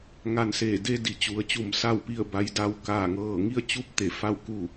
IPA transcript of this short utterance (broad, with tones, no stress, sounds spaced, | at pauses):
ŋ a˧ n s eː˧˩ d e˧ d i˩˧ t͡ɕ u˩˧ ə̯ t͡ɕ u˧˩ m s a˥˨ w p i˥˨ ə̯ b a˧˥ j d a˧˥ w k aː˥˨ ŋ ɤː˥˨ ŋ i˥˨ ə̯ t͡ɕ u˧˥ p̚ t̪ e˧˩ f a˥˨ w k u˥˨